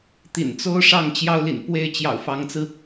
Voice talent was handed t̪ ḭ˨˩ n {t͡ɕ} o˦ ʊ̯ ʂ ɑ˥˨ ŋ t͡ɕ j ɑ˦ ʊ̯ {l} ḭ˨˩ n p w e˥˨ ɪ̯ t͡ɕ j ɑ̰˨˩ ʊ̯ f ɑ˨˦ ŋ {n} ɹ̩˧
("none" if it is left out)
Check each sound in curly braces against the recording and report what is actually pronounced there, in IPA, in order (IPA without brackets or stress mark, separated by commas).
t͡s, l, t͡s